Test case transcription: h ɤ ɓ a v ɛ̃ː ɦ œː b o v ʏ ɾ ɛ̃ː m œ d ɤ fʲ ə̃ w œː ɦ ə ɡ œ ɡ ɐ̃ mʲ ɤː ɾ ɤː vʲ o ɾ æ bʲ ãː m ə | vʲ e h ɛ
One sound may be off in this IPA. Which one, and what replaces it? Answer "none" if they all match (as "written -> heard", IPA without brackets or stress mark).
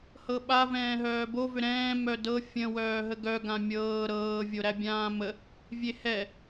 ɐ̃ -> ã